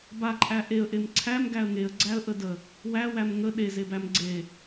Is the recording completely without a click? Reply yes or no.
no